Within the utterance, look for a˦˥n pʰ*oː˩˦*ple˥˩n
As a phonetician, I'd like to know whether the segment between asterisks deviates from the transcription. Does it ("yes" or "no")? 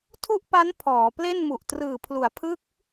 yes